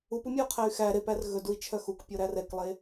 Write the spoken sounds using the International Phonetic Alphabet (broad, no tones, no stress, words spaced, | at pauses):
upumʲɛu̯qʰæy̯ xæ ɾepær ɣɵdui̯t͡ʃʰœ xukpʲoɾæ rɛklˠe